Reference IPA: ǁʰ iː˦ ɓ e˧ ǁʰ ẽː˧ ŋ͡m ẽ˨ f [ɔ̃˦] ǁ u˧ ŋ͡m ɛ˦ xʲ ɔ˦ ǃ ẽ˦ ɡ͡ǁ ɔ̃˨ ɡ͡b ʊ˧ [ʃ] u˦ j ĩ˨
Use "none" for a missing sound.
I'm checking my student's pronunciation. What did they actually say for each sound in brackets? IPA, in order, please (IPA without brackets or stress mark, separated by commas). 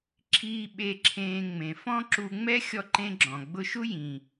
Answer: ɔ̃˦, ʃ